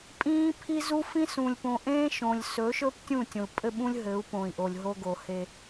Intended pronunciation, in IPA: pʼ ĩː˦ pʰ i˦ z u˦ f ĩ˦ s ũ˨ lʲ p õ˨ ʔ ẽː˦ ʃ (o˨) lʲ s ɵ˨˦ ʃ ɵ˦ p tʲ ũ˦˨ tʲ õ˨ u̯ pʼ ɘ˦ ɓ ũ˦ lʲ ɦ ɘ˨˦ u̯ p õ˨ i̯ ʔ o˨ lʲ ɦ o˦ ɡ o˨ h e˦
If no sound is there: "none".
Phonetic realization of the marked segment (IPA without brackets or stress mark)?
õ˨